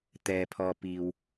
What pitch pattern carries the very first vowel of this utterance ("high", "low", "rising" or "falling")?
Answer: low